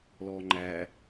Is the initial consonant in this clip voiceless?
no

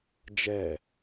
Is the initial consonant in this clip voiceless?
no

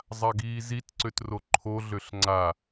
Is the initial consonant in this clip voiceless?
no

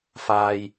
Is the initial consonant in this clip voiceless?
yes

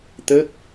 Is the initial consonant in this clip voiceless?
yes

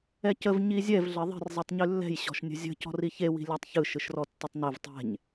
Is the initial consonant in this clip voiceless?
yes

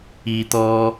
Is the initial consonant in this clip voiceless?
yes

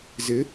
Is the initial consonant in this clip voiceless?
no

